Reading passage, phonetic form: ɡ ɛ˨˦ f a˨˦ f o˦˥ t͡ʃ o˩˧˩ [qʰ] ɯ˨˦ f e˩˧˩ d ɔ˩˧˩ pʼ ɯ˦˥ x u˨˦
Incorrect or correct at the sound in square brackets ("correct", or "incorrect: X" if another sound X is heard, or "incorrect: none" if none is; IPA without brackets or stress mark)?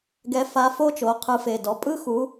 correct